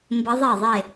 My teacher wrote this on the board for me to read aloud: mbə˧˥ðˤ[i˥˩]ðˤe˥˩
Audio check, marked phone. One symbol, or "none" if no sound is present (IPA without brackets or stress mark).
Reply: e˥˩